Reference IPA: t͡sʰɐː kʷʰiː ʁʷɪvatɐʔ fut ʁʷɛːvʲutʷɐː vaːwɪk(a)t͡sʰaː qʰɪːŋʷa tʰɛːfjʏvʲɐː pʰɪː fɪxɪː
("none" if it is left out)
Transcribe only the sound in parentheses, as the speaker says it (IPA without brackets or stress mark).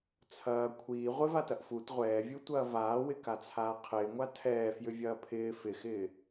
a